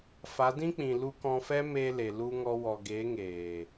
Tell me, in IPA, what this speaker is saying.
f a˨˦ d ĩ˦ k͡p ĩ˨ l u˧ k ɔ̃˧ f ɛ˦ m eː˧ l e˨ l u˧ ŋ ɔ˧ w ɔ˨ ɡ e˨˦ ŋ eː˨

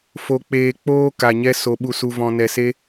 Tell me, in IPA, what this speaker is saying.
f o˧ k͡p eː˧ k͡p oː˦ k a˧ ɲ ɛ˦ s o˦ ɓ u˦ s u˦ v ɔ̃˧ n ɛ˧ s e˦

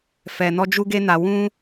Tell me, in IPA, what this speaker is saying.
f ɛ˧ n ɔ˦ d͡ʒ u˦ ɡ e˦ n a˧ w ũ˦

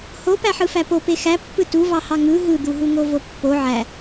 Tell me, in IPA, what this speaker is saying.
h o p æ ħ ɯ f æ p o p e x æ pː ɯ t u v ɑ h ɑ ŋ ɯ ɦ ɯ d̪ u ɦ u ŋ o v o pː o ʕ æ

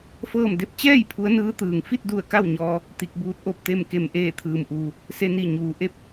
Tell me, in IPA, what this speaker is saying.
f ɤː˥˨ m d e˥˨ p̚ t͡ɕ ɛː˥˨ j pʰ u˧˥ ə̯ n ɯː˧˥ t̪ ɯː˩ ŋ f i˥˨ t̚ d u˧˩ ə̯ k a˥˨ w ɲ ɔː˧ | t̪ i˧ k̚ b uː˧˥ t̚ ʔ o˥˨ p̚ t̪ e˥˨ m k e˧˩ m ʔ eː˧˩ t̪ʰ ɯː˩ m ʔ uː˩ | s e˧ n i˧˩ ɲ uː˩ ʔ e˥˨ p̚

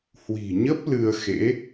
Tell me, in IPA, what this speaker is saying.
h w i̤˨˩ ɲ ə˦˥ p̚ l ɨ˧ ə̯ x ḛ˧˥

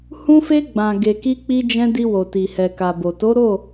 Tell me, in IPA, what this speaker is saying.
h ũ˧ f e˧ ɡ͡b ã˨ ɡ e˨ k i˧ k͡p i˧ d͡ʒ ɛ̃˧ d i˧ w o˨ t i˨ h ɛ˨ k a˨ b o˨ t o˨˦ ɾ o˦˨

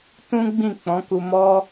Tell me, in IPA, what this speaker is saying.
t ũ˦ ɡ͡b ĩ˦˨ k͡p ɔ̃˨˦ k u˧ m ɔ˦

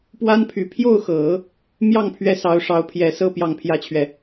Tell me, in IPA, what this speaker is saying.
p w a˥ n pʰ y˨˩ pʰ j o˥˩ ʊ̯ x ɤ˨˩˦ | m j ɑ˥˩ ŋ pʰ ɥ ɛ˥ s ɑ˧˥ ʊ̯ ʂ ɑ˧˥ ʊ̯ pʰ j ɛ˨˩ s ɤ˥˧ p j ɑ˥˩ ŋ pʰ j ä˥ t͡ɕʰ ɥ ɛ˨

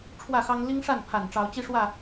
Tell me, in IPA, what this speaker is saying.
ʈ͡ʂʰ w ä˥˨ x ɑ˦ ŋ l i˦ ŋ ʂ a˥˨ n pʰ a˨˩ n ʈ͡ʂ ɑ˨˦ ʊ̯ t͡ɕ i˦ ʂ w ä˥˨

